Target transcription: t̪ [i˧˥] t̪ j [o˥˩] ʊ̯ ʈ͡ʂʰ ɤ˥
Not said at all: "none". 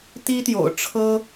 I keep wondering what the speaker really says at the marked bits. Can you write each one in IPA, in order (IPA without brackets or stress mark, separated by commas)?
i˥, o̰˨˩